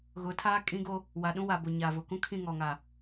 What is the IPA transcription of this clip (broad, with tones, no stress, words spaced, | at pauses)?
ɣʊ˨˦tʰaː˦ kʼĩ˦ɡo˦ | wa˨ɗũ˦wa˨bo˨ ɲa˨vʊ˨kũ˦kʰĩ˦˨ ŋɔ˨ŋa˨